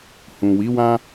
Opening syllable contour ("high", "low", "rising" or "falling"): low